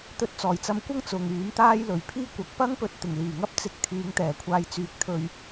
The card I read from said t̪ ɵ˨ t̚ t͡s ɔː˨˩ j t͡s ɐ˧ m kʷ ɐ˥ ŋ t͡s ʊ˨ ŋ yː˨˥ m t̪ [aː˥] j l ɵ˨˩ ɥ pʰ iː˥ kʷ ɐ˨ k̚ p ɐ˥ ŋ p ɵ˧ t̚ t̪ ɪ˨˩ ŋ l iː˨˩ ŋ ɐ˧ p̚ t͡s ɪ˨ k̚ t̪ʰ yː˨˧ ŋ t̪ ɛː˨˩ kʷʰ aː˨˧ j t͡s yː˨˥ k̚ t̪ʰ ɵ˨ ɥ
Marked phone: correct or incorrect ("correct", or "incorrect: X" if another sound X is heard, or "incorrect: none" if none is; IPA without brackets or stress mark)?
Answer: correct